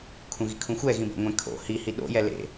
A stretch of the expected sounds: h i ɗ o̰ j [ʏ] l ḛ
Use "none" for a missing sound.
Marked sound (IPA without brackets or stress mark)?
ɛ